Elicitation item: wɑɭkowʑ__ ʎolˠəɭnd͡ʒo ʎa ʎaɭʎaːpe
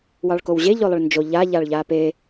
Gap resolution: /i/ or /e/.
e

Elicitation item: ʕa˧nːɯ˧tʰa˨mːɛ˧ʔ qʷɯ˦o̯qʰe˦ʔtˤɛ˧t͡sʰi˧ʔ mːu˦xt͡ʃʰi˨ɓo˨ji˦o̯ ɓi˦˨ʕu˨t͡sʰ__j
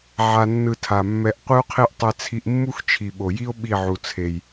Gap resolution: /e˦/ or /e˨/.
e˨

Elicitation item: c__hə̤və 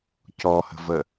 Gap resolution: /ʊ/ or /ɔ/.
ɔ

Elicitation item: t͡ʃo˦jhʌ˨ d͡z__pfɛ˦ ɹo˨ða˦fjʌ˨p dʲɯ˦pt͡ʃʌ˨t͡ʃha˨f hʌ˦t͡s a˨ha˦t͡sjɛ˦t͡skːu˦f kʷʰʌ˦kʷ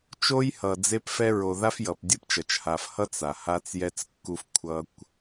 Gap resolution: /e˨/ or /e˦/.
e˦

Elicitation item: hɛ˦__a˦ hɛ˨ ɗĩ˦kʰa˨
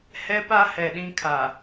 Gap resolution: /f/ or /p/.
p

